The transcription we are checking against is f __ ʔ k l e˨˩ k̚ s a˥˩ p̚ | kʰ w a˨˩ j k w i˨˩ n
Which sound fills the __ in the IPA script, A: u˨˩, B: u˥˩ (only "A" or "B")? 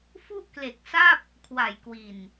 B